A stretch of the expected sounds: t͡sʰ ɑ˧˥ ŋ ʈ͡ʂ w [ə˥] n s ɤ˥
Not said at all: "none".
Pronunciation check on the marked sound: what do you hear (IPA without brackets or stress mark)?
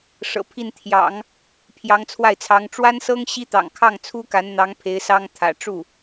a˥